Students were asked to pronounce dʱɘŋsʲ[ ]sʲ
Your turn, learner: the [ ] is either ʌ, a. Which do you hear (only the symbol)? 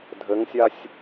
a